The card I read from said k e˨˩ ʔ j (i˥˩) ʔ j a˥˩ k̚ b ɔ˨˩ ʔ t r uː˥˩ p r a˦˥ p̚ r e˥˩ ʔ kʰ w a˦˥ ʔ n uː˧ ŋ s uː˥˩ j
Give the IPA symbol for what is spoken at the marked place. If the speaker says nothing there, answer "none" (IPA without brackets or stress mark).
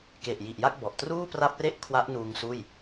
i˨˩